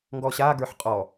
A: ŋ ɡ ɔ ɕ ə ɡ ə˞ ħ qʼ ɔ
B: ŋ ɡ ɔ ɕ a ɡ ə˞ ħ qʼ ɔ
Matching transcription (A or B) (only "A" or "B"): B